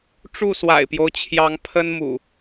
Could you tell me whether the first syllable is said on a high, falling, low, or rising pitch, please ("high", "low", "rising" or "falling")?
falling